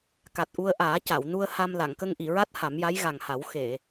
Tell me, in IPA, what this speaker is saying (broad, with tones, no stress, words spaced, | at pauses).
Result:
ka˨˩t̚ʔu˧ə̯ʔaː˨˩˦ ca˨˩˨wnu˧ə̯ ha˧m la˨˩˨ŋkə˧ŋʔi˨˩˨ɹa˦˥t̚ ha˨˩˦mja˧˥jɣa˨˩ŋha˨˩˦w xe˨˩˨